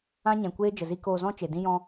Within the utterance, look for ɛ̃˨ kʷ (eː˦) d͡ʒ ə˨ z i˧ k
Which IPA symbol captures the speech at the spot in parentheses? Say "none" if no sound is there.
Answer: eː˦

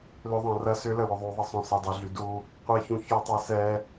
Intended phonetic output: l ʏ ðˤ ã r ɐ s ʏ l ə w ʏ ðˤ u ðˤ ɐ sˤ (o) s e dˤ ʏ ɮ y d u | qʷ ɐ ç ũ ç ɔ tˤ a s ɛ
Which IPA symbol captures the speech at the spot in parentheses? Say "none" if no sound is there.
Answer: õ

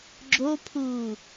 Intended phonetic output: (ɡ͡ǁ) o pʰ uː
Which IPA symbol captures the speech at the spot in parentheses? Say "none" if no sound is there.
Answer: ɡ͡ǁ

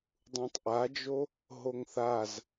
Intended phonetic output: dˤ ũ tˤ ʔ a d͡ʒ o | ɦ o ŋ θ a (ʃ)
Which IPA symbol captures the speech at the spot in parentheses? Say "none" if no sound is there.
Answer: z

